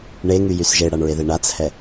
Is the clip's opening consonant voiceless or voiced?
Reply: voiced